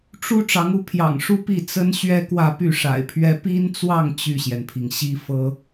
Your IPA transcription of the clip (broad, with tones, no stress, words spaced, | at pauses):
ʈ͡ʂu˥ ʈ͡ʂɑ˧˥ŋu˧˥ pʰjɑ̰˨˩ŋʂu˥˧ pi˥˩t͡sə˥nɕɥɛ˥ kwä˥˧py˥˩ʂa̰˨˩ɪ̯pʰɥɛ˥ pi˥nt͡swɑ˥˧ŋ t͡ɕy˥˩ɕjɛ˩npʰi˩ŋ ɕi˥ fɤ˥